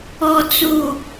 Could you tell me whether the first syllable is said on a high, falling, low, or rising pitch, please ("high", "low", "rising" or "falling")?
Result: low